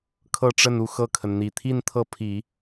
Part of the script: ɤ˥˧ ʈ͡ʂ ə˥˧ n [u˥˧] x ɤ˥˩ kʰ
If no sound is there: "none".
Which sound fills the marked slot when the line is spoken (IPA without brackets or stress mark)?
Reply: u˥˧